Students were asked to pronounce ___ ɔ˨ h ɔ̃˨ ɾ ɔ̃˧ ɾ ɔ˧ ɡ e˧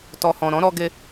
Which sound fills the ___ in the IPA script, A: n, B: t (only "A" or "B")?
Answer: B